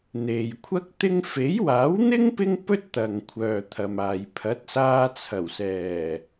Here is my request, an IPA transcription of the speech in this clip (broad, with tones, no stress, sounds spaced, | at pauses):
n̪ e˨ j kʷʰ ɐ˥ k̚ t̪ ɪ˥ ŋ f e˨˥ j w aː˨˥ w n̪ ɪ˥ ŋ p ɪ˥ ŋ p ɵ˥ t̚ t̪ ɐ˨ ŋ kʷʰ œː˨ t̪ʰ ɐ˨ m aː˨ j pʰ ɐ˨˥ t̚ s aː˧ t͡sʰ ɐ˨˩ w s ɛː˨˩